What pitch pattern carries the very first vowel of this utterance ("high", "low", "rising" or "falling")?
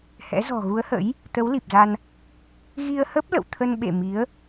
rising